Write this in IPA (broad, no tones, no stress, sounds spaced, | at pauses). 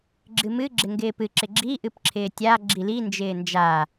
ɡ͡ǁ ɨ m ɨ ɡ͡ǁ ɪ ŋ ɡ ɪː p ɨ ǁ ɪ ɡ͡ǁ i ʔ ɨ p ǁʰ ɪː tʲ a ɡ͡ǁ i l i n d͡ʒ ɪː n d͡ʒ a